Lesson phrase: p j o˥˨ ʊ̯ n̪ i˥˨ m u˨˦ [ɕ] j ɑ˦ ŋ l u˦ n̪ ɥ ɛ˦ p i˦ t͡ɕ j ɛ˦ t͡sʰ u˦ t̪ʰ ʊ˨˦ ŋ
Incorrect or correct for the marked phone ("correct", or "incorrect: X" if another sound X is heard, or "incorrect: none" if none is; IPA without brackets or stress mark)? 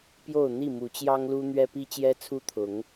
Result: incorrect: t͡ɕ